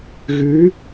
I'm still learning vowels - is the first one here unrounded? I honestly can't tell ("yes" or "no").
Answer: no